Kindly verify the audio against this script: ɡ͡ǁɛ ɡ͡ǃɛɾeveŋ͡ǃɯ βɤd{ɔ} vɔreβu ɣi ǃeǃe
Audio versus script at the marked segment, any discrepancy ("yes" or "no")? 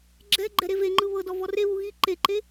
no